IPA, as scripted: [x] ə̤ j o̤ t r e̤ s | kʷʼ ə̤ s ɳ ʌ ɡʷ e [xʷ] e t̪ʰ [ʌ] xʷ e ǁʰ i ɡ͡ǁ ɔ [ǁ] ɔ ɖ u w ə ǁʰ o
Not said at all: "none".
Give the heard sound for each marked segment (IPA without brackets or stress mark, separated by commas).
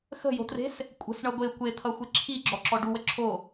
x, kʷ, ʌ, ǁ